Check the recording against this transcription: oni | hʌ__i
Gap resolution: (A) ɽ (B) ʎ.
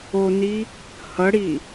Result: A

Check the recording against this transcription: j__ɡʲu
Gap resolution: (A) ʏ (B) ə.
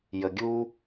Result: B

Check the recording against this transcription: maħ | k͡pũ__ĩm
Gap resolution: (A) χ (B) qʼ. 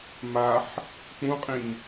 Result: B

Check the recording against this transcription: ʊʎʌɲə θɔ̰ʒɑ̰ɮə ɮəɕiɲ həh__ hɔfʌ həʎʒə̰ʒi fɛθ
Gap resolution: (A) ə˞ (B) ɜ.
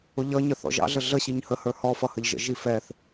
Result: A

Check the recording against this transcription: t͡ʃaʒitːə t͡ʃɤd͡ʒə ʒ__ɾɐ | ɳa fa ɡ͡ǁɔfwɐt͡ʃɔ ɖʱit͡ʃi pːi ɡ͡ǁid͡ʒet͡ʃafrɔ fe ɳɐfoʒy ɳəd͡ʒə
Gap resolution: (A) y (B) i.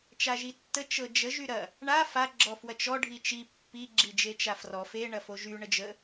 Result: A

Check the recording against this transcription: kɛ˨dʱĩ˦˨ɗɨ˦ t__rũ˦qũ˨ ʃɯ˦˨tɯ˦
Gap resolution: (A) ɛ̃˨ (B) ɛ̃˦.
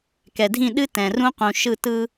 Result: A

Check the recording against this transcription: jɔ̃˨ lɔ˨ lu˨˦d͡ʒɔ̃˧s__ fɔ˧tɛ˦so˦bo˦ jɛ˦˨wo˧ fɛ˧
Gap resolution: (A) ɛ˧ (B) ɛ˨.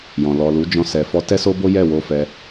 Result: B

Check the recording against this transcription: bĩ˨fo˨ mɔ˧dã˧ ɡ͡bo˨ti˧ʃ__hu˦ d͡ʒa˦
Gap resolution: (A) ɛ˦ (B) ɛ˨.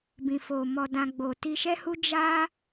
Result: A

